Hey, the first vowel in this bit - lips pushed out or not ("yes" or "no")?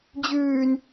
yes